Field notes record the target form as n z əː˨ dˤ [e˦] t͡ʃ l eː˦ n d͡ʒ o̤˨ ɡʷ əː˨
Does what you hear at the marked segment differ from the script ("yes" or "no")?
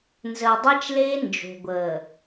yes